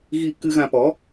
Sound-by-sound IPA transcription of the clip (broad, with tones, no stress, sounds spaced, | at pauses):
ɣ i˧ k ɨ˧ ɣ ã˧ p ɔ˨˦